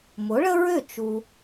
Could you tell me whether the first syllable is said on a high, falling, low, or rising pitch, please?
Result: rising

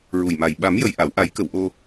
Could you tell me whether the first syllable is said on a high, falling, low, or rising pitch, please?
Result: low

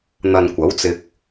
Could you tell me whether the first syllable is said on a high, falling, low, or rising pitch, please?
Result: low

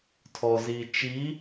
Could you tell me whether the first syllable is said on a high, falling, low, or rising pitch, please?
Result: low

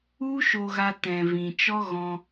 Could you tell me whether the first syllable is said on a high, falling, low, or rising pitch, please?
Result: high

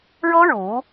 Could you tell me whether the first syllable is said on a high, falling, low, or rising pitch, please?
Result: high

